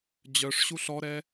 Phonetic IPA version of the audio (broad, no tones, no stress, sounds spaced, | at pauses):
d͡ʑ œ ʂ ɕ u ɬ ɔ ɾ ɛ